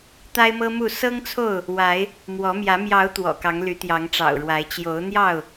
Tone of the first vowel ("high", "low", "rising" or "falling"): high